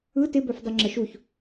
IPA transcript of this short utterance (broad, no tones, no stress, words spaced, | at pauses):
ɯ tɪbœfdˤə ŋ͡ǁəʃuç